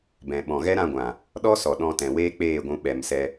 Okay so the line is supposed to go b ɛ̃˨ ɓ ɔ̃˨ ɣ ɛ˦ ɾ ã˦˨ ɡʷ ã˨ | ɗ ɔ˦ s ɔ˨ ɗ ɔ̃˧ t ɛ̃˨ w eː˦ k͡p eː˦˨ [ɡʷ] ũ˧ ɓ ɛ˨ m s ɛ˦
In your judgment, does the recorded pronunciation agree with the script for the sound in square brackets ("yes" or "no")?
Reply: yes